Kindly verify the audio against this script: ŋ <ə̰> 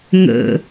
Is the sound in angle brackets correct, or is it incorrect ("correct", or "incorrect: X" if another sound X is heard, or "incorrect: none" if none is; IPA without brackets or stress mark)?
correct